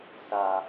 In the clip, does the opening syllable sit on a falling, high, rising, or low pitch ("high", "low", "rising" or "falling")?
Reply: low